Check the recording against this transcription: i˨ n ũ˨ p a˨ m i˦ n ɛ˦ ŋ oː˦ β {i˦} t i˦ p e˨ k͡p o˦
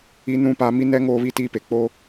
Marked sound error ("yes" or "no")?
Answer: no